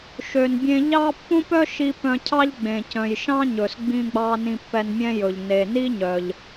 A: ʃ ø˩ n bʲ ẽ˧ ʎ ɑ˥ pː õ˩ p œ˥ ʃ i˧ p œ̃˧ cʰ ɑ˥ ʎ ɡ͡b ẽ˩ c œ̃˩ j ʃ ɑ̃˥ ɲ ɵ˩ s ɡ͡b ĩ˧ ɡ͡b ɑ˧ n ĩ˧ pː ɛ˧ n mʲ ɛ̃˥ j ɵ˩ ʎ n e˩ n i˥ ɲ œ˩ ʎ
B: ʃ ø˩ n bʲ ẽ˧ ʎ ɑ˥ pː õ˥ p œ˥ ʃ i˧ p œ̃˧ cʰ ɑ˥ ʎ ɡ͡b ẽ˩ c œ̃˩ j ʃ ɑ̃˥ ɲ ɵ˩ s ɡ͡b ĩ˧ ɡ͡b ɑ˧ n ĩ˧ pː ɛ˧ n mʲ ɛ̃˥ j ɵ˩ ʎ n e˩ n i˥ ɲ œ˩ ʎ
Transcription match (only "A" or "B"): B